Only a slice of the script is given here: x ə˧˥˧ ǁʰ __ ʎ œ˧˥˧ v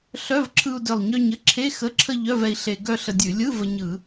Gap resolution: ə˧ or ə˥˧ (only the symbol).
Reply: ə˥˧